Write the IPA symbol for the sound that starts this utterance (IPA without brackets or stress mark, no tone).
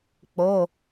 k͡p